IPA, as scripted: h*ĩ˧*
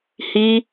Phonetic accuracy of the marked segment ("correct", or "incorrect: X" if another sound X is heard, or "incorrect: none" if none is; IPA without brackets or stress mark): incorrect: i˧